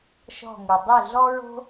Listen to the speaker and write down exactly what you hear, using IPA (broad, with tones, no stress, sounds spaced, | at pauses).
ʃ ɔ̤˥˩ ŋ u˩ dˤ e˥˩ ɮ ɔ˥ ɹ o̤˥